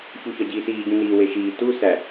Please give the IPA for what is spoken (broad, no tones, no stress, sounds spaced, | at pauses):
ç u ç ɒ ɟ iː s iː ɟ ũ n iː w e ʃ iː t u s æ